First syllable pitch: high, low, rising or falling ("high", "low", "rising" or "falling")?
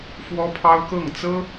high